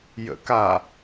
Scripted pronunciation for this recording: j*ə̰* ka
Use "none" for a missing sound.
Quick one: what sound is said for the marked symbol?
ə̰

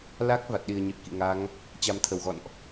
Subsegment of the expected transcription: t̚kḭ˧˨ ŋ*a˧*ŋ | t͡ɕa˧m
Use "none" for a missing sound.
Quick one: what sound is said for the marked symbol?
a˨˦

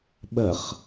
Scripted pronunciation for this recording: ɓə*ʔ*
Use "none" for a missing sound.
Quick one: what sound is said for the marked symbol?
χ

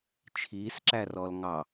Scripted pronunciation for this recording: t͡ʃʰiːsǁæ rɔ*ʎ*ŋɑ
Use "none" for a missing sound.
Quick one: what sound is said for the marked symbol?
l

